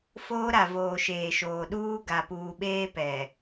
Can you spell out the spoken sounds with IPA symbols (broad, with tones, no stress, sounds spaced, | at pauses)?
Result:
f oː˦ ɾ a˨ v oː˨ ʃ eː˨ ʃ oː˨ ɗ uː˦ ɡ a˨ p uː˨ ɓ eː˦ p ɛ˨